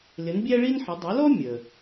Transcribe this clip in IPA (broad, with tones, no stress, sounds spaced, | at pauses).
l ɪ˩˥ n bʲ æ˥ ɭ i˥ n ħ ə˩˥ dˤ u˩˥ l ɔ˥ mʲ ə˩